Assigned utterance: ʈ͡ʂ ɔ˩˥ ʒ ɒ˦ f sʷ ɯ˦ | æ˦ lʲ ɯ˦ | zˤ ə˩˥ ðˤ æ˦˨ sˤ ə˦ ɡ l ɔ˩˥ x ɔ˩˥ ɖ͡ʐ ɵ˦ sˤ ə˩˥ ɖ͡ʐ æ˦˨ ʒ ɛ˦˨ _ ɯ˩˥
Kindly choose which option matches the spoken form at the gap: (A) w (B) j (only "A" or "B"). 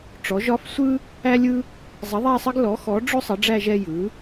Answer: B